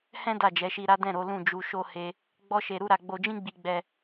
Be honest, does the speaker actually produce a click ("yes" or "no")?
no